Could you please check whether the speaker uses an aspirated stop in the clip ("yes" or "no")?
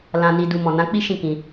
no